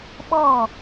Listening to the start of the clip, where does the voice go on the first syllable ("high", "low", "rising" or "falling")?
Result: falling